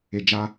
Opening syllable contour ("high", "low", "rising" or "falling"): low